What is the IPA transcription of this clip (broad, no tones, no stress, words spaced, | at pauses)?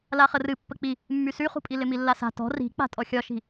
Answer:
laχərɨ pːək͡pi | mːysyχṳpʼi lɪmilːasa̤ tɔ̤ ri̤ k͡pa̤tʼɔxʲɒʃi̤